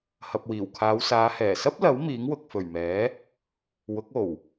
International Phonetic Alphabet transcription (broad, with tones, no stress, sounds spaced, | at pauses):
h ɐ˨ p̚ w iː˨˩ w kʰ aː˨˧ w s aː˨˧ h ɛː˨˩ s ɐ˥ p̚ l ɐ˨˥ w m iː˨˥ ŋ w ʊ˨ k̚ f ɵ˨˩ ɥ m ɛː˨˥ | w ʊ˨˥ k̚ o˨˩ w